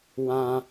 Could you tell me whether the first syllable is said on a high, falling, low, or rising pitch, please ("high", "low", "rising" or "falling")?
high